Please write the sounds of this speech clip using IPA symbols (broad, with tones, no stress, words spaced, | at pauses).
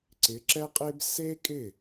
ǀɪ˩˥ǁɛ˥qʼe˥b se˥kʼɪ˥˩